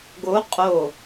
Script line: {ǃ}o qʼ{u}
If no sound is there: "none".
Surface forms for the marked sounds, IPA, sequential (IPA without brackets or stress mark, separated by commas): ɡ, o